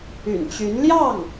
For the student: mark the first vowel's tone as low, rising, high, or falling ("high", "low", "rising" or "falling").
low